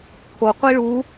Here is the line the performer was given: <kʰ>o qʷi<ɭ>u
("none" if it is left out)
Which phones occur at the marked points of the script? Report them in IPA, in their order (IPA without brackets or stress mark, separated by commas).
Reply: kʰ, ɭ